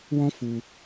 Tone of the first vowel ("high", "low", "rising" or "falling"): high